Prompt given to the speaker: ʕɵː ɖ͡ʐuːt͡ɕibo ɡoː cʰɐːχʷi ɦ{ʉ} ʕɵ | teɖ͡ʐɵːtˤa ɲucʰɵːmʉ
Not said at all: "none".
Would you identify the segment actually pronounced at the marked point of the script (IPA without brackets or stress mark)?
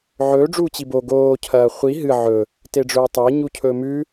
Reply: ɨ